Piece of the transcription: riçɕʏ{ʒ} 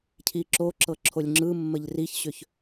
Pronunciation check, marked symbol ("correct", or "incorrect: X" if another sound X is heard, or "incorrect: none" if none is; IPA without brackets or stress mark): incorrect: ç